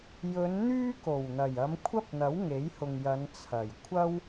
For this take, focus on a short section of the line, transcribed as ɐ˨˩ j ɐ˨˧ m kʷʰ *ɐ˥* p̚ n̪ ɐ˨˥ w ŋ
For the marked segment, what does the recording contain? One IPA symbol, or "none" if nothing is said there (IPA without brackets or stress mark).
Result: ɐ˥